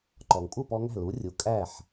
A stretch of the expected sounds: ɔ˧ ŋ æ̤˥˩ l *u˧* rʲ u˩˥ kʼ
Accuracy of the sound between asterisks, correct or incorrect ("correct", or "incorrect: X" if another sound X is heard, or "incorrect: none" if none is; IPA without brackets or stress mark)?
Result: incorrect: u˩˥